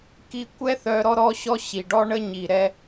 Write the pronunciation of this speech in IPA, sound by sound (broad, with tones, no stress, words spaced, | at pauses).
ki˧ kʷɛ˦θœ˧ ɾɔ˦ɾɔ˦ɕɔ˦ ɕi˨ɖɔ˦ɳə˦ɲi˨ ɾɛ˦